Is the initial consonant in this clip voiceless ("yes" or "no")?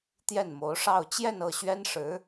yes